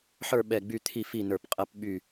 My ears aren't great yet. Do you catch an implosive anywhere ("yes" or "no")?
yes